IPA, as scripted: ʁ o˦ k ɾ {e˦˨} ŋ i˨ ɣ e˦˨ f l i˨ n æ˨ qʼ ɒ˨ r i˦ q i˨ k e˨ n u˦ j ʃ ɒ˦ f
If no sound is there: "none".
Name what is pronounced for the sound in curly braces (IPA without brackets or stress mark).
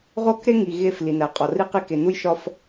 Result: e˦